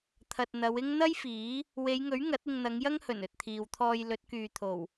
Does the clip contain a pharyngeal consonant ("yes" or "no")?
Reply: no